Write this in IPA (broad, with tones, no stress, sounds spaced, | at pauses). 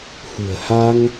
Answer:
h ṳ˨˩ ə̯ h a˧ ŋ